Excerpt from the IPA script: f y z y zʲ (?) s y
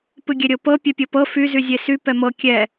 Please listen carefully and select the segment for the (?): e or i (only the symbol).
e